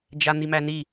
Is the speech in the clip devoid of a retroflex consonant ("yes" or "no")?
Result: yes